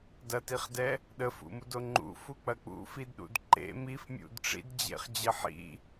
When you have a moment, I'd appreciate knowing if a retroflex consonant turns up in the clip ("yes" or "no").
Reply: yes